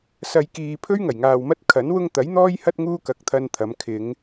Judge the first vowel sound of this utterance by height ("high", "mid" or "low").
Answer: low